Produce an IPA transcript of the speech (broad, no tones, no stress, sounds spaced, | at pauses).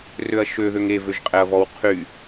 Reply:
r ø ɐ̯ ʃ ø ð ø ŋ e v ø ʒ qʼ ɛ ɐ̯ v ɔ w qʰ y